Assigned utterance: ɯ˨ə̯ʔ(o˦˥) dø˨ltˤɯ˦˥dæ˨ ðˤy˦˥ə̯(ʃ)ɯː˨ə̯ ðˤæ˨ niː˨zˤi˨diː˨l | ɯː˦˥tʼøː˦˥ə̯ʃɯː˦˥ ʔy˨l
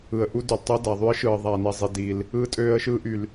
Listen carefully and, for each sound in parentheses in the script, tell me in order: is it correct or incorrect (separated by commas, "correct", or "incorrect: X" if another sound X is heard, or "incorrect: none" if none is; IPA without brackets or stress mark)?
incorrect: u˦˥, correct